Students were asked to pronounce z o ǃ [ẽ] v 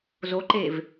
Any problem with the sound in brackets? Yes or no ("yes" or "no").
yes